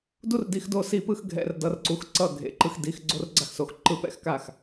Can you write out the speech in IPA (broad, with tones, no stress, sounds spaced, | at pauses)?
d u˥ r d i˧ x d o˥˨ s i˥ p ɯ˥ x ɡʱ ɛ̰˧˥˧ r d ʌ˧˥˧ r ǀ u˧ x ǀ ʌ˥˨ ɡʱ ḛ˧˥˧ ǃ ɯ˥ x d i˧˥˧ x ɡ͡ǀ o˥ r ɡ͡ǀ a˥ x s o˧ x ǃ ɯ˥˨ p ɛ̰˧˥˧ x k a˥˨ x